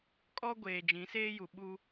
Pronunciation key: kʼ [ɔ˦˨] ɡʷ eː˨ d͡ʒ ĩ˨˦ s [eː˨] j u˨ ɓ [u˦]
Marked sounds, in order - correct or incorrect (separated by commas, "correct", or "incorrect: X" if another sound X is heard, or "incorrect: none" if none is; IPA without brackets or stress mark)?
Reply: incorrect: ɔ˦, incorrect: eː˦, correct